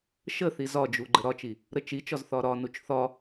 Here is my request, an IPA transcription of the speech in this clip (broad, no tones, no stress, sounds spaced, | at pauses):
ʃ ə θ i z ɒ d͡ʒ u ɡ͡ǃ ə ɾ ɒ t͡ʃ i | ɾ ə t͡ʃ i t͡ʃ ɒ z θ ɒ ɾ ɒ n u t͡ʃ θ ɒ